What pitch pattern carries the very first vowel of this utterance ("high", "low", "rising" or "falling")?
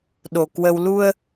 low